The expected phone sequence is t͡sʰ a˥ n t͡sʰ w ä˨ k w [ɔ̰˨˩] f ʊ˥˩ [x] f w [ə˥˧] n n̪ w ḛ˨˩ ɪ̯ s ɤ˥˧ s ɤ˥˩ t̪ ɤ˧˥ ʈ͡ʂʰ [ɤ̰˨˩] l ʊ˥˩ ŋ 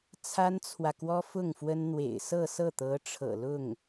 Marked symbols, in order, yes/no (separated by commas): no, no, no, yes